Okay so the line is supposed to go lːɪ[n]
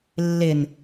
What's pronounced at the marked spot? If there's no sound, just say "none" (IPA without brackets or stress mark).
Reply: n